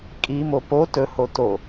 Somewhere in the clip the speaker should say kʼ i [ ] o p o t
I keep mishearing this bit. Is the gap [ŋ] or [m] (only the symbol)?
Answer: m